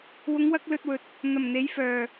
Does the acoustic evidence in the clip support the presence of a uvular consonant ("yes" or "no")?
no